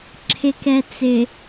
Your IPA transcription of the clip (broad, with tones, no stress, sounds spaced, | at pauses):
ǁʰ ɪ˨ k ɛ˨ t͡s ɪ˨